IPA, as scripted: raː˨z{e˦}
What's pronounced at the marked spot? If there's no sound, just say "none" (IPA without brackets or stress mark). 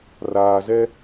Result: ɛ˦